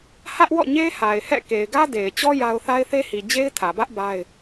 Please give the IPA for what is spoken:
hä˦ʔwɔ̰˦˨ɲe˦ ha˨ɪ̯hɛ̰˦˨ ke˨ɪ̯ɡä˦de˨ɪ̯t͡ɕɔ˦ ja˦ʊ̯ θa˦ɪ̯θe˦hi˨ d͡ʑe˦ɪ̯tʰä˨bä˦ʔ ba˦ɪ̯

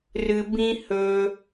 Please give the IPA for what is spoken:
rɨ˨ bĩ˦hɵ˧

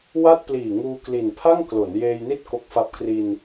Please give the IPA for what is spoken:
wa˥˩t̚pliː˨˩ŋuː˧ kli˨˩n pʰa˥˩ŋklo˩˦n jeː˧jni˥˩t̚ ko˦˥k̚fa˦˥p̚ kri˧n

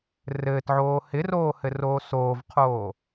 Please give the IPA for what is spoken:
rɘːtʕoː hɪroːhɘroː soːvqʰoː

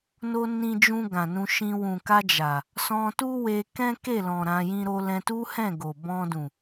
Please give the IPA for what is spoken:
no˧nĩ˧d͡ʒũ˧ ɡã˨nũ˧ʃĩ˧ wũ˨ka˧ d͡ʒa˨ | sɔ̃˧ tu˦we˧ kɛ̃˦ke˦˨lɔ̃˨ ɾã˨˦jĩ˦ ɾo˧lɛ̃˧tu˦hɛ̃˦˨ ɡo˨bɔ̃˧dũ˨

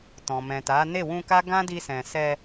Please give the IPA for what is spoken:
tɔ̃˨mɛ̃˨ta˨˦ ne˦˨wũ˧ka˦ ɡã˦di˧sɛ̃˨ sɛ˧

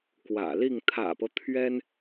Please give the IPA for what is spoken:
kwä̰˨˩li˥˩ŋ t̪ʰä̰˨˩pɤ˦ t̪ʰɥɛ˥n

